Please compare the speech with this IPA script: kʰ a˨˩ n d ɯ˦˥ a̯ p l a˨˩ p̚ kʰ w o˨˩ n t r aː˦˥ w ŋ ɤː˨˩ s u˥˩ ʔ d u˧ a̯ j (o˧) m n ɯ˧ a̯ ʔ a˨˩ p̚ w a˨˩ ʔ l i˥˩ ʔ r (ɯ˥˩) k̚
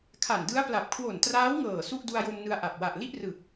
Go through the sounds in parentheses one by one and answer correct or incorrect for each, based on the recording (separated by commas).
correct, incorrect